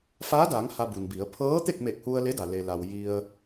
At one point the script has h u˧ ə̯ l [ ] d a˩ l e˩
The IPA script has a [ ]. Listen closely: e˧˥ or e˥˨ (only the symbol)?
e˧˥